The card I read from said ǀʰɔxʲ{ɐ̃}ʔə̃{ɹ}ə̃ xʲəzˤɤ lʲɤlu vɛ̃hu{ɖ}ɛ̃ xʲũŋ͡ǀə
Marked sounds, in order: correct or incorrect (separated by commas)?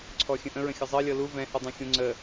incorrect, correct, incorrect